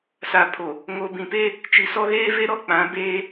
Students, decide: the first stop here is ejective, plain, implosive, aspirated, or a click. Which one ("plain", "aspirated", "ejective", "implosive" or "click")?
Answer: aspirated